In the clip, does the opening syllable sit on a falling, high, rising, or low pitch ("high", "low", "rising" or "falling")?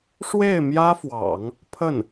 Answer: falling